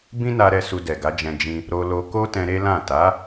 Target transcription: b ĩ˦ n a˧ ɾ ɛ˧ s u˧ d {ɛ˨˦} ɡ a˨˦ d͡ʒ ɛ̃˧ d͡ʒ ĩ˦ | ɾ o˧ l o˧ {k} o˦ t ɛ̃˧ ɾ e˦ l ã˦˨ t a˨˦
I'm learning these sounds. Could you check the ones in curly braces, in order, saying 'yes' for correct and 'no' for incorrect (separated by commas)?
no, yes